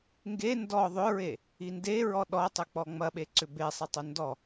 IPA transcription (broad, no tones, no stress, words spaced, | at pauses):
ŋɡe ndɔ ðˤʏɹe | indeɹɔ ɗɔtˤʏk͡pɔ ŋ͡mɐɓeǀʏ besˤɐ tˤʏndɔ